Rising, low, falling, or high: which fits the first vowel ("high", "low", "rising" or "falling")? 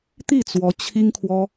falling